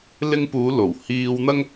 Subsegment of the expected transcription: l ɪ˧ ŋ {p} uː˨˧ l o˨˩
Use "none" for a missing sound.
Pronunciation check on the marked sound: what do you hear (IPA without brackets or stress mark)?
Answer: p